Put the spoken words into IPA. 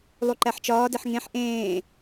lˠ u ǃ æ ħ t͡ʃ ɒː d e ħ ŋ ẽ ħ ʔ ẽː

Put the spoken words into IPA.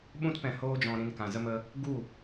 ɓ ũ˦ t p ɛ̃˧ h oː˦ d͡ʒ ɔ̃˧ ɾ ĩ˧ n k ã˨ z ə˧ m ə˧ | ɡ u˦˨

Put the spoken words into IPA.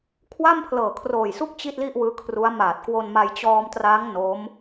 kʰ w a˥˩ m pʰ l ɤː˨˩ kʰ r oː˨˩ j s u˥˩ k̚ t͡ɕ i˥˩ t̚ l i˥˩ ʔ w ɯː˦˥ kʰ r u˦˥ a̯ m aː˨˩ t̚ k w o˧ n m a˧ j t͡ɕ ɔː˧ m t r aː˦˥ ŋ n o˦˥ m

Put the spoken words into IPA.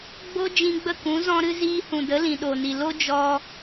ɡ͡b o˦ d͡ʒ ĩ˧ ɡ͡b ə˦˨ k ũ˨˦ z ɔ̃˧ ɾ ɨ˧ z iː˧ h ũ˨ d ə˨˦ l ĩ˨ ɗ o˨ n i˨ l o˦ d͡ʒ ɔ˧

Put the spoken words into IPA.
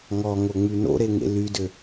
ŋ ɔ ŋ o ŋ͡m y n o̰ ɾ e ŋ ḛ l y d ø

